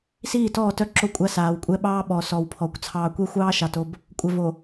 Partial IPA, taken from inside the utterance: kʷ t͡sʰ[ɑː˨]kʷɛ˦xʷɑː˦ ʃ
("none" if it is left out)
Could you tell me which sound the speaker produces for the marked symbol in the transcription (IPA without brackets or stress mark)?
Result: ɑː˨